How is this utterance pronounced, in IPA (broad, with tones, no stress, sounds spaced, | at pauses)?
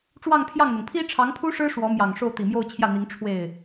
ʈ͡ʂ w ɑ˥˧ ŋ pʰ j ɑ˥˩ ŋ n̪ ɤ˩ ŋ pʰ i˥ ʈ͡ʂʰ ɑ˧˥ ŋ pʰ u˥ ʂ ɻ̩˥ ʂ w ɔ˧˥ m j ɑ˨˩ ŋ ʂ o˥˩ ʊ̯ t̪ i˨˩ m j o˥˧ ʊ̯ t͡ɕʰ j ä˥˩ n̪ i˧˥ ŋ ʈ͡ʂʰ w e˥˩ ɪ̯